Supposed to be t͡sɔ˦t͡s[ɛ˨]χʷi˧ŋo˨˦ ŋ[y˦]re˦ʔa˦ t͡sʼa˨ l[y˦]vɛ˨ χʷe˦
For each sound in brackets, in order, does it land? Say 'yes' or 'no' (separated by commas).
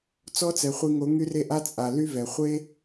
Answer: yes, yes, yes